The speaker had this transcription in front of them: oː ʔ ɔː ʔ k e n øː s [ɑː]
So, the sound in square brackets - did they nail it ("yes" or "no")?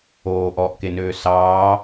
yes